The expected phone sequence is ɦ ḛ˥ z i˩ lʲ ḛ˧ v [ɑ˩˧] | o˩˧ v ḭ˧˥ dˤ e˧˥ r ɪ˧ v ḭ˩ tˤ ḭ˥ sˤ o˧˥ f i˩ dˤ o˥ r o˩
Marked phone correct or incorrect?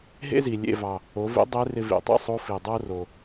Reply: incorrect